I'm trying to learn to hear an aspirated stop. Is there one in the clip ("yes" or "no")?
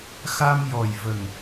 no